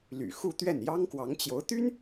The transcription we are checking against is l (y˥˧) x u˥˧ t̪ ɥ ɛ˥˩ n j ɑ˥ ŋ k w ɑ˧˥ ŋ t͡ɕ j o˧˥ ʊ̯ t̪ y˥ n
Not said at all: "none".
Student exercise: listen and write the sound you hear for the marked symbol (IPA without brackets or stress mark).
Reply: y̰˨˩